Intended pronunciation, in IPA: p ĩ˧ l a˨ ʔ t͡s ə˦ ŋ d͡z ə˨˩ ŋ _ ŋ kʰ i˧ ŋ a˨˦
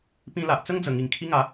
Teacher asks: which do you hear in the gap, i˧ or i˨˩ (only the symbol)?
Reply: i˨˩